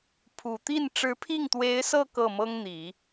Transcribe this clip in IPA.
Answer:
pʰ u˨˩ t̪ i˥˩ n ʈ͡ʂ ɻ̩˧˥ pʰ i˥˩ ŋ t̪ w e˧˥ ɪ̯ s ɤ˥˧ k ɤ˥˩ m ɤ˥ ŋ n̪ i˨˩˦

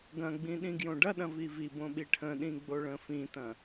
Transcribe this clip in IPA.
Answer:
ɡ ɐ̃ ɡ͡b ĩ ɗ ĩ ɡ j õ ɖ ɐ ɗ ɐ̃ v i v i b õ ɓ i ʈʰ ə̃ ɗ ĩ ɡ͡b o ɭ ə̃ f ĩ t ɐ̃

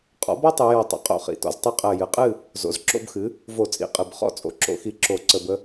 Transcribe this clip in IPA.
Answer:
qʼ ɔ̰˩˥ b ɔ˦ tˤ ɨ˩˧ j ɔ˨˩ tˤ ə̰˩˥ qʼ o̰˧˩˧ χ ḭ˩˧ t ɔ̰˩˥ z tˤ i˦ qʼ ɜ˨˩ j ɨ˩˧ qʼ ɨ˥˨ | z o̰˩˧ z ǁ o̰˥˨ b x ɨ˩˥ | v o˧˩˧ t͡sʼ ḭ˨˩ qʼ ɨ˨˩ b χ ɔ̰˦ t͡sʼ o̰˩˥ ǁ o̰˧˩˧ x i˧˩˧ ǁ o˧˩˧ ǀ ə˧˩˧ b ə˦

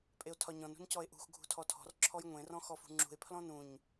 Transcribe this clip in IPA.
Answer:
pʼ e o̯ tʰ ɒ ɲ ɔ̃ n ṳ n c ɔ e̯ ʔ ṳ x ɡʱ ṳ tʰ ɔ tʰ ɔ̤ r ǁʰ ɔ j ŋʷ ẽ r ɔ̃ x ɔ f ṳ ŋ͡ǁ ṳ e̯ pʰ l ɔ̃ n ũ ɲ

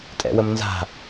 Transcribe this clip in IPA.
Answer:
tʼ ɛ̰ w ə m n z a̤

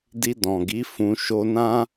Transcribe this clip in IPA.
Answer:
d i˧ d ɔ̃˨ ɡ i˨˦ f ũ˧ ʃ o˧ n ã˦

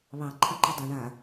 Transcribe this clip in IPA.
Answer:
β ɑ ǃʰ ɑ ǃ ɔ dˤ a ɳ a

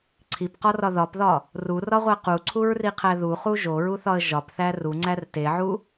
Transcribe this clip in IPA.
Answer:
ǀʰ i p q ɒ r ɒ ð ɒ p ð ɒ | r u r ɒ ʁʷ æ q u ǀʰ u ɹ r i qʰ æ ð u χ u ʒ o ɹ u θ ɒ ə̯ ʒ ɒ p θ æ r u ŋ͡ǀ æ r t e ʕ u

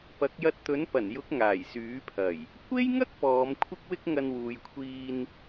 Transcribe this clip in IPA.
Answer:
p ɐ˨˥ k̚ j ɐ˧ t̚ t̪ ɵ˨˥ n p ɐ˨˩ n j ʊ˨˥ k̚ ŋ aː˨˩ j s yː˨˥ pʰ ɐ˨˩ j | kʷ e˥ j ŋ ɐ˥ k̚ p ɔː˨˧ m kʷʰ ɪ˥ k̚ w ɪ˥ k̚ ŋ ɐ˧ n w uː˨ j kʷʰ iː˧ n

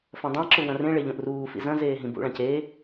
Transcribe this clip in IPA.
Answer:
f ɐ̃ dˤ ã ǁ u w ɐ̃ r ẽ ɭ e ʎ õ ʔ r uː f ḭ z ɐ̃ z eː ɦ ĩ b ṵ ɭ ã c e

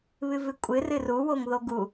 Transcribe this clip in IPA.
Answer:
β ɨ v ɨ kʷʼ ɨ r ɨ r u w o ŋ ð o ɡ u

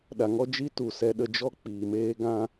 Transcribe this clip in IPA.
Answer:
ɗ a˨ ŋ ɔ˦ d͡ʒ i˦ t u˨ s ɛ˧ ɗ ə˧ d͡ʒ ɔ˦ k͡p iː˨ m eː˦ ɡ ã˦

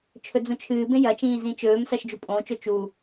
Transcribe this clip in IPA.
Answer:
t͡ʃʰ ɵ d͡z ũ t͡ʃʰ ɨː b ẽ j ɐ t͡ʃ ĩː z ĩ t͡ʃ ɵː m s ɐ ʃ d͡ʒ u pʼ õː t͡ʃ o t͡ʃ u

